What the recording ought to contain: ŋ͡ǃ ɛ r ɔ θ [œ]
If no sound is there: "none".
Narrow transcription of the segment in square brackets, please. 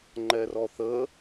ə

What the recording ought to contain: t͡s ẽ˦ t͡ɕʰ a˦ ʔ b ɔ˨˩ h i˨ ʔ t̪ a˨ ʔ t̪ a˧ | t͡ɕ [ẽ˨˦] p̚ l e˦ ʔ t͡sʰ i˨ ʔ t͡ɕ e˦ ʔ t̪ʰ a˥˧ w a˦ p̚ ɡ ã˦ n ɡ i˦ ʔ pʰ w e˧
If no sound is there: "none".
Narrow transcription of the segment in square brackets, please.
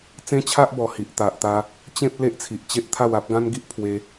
ẽ˦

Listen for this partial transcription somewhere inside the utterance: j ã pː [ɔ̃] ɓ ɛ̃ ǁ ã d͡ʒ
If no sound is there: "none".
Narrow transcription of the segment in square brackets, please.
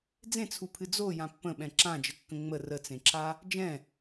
ə̃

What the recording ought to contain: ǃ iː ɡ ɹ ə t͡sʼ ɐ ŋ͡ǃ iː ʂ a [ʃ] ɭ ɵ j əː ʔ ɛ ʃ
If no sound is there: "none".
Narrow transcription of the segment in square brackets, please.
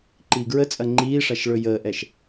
ʃ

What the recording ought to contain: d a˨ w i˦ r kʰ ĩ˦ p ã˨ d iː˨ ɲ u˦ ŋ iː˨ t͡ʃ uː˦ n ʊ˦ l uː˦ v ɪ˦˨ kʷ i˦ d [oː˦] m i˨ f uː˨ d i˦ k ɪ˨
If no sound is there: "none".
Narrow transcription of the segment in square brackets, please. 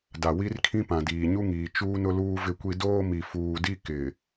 oː˦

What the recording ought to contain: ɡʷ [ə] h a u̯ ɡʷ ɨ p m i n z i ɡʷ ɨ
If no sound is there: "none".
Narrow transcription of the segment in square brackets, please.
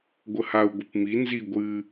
ə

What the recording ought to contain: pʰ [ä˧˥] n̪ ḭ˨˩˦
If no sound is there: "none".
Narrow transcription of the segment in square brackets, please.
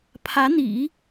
ä˧˥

